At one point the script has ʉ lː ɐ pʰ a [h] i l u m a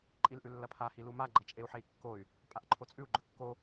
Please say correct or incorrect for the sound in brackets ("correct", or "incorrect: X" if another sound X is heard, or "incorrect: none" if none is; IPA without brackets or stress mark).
correct